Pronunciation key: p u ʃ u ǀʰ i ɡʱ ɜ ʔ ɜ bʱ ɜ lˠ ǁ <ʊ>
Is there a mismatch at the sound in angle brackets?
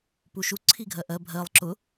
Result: no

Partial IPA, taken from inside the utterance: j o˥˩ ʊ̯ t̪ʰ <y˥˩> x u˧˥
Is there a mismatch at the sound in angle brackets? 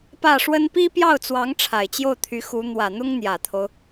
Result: yes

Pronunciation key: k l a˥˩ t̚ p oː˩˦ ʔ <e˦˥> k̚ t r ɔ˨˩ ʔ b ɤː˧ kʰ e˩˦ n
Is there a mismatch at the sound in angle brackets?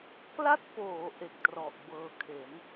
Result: yes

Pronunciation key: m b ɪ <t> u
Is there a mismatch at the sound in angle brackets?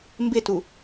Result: no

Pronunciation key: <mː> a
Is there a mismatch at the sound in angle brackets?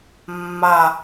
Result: no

